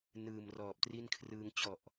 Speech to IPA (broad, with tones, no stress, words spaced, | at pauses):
nɯː˨˩mrɔː˨˩p̚tri˥˩nkʰrɯː˧ŋ t͡ɕɔ˨˩ʔ